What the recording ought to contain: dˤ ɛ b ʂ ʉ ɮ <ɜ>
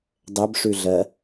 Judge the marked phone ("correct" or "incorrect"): correct